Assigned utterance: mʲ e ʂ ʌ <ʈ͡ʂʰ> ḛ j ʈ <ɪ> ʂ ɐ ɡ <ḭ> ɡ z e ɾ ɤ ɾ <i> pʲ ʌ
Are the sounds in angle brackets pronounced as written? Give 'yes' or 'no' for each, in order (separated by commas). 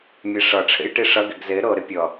yes, no, no, no